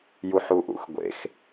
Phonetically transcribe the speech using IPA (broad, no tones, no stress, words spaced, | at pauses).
juħuʔṵxɡʷḛx